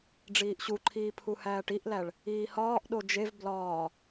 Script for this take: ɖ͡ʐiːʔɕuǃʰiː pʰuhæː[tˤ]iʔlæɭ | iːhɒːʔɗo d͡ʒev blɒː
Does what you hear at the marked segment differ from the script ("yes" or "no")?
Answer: yes